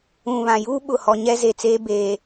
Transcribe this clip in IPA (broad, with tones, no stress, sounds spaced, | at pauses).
ũ˨ β ã˨ j uː˦ ɓ ʊ˨ h ɔ˨ ɲ ɛ˦ z e˨ t͡s eː˦ b eː˨